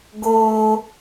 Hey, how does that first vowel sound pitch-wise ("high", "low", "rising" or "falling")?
high